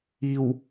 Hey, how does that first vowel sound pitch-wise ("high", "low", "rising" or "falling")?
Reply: low